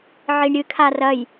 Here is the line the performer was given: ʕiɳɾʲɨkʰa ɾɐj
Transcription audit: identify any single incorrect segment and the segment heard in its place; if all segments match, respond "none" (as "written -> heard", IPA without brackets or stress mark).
ɾ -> r